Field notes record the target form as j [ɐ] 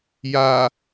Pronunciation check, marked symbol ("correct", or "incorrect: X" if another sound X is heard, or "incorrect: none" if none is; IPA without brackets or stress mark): incorrect: a